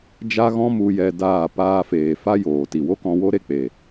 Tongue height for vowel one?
low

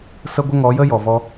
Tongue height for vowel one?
mid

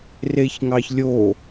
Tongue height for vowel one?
mid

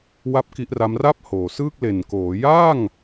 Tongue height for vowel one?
low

